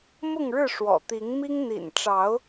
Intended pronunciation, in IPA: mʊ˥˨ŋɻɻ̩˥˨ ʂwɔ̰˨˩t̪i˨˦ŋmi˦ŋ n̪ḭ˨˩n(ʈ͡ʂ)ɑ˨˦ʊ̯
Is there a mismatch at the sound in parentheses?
no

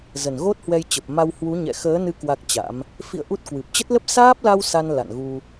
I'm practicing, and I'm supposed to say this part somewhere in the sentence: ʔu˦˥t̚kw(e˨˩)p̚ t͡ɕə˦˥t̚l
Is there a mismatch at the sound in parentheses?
yes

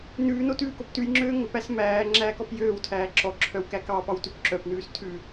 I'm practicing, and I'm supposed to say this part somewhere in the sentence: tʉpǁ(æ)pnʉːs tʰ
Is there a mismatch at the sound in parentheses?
yes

